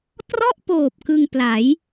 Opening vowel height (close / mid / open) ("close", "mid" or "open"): mid